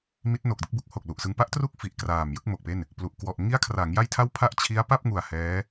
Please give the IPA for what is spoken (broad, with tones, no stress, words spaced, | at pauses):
mi˦˥t̚no˨˩k̚dɯ˦˥k̚bu˦˥k̚ ho˨˩k̚lu˨˩ʔsɯ˧ŋ pa˦˥ʔtru˦˥k̚ fi˨˩ʔkraː˨˩m jɯ˥˩k̚mo˨˩k̚pe˥˩n | plu˨˩ʔ kwɔ˨˩ʔ ŋi˦˥a̯kʰra˩˦ŋ ja˥˩jtʰa˥˩wpʰa˥˩ʔ t͡ɕʰi˦˥a̯ pa˥˩p̚ŋu˨˩a̯ hɛː˦˥